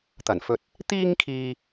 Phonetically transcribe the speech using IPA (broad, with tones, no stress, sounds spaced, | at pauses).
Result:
t̪ ɐ˨˩ n f ɵ˨ t̚ | t̪ iː˧ ŋ kʰ iː˨